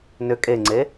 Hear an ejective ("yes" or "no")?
yes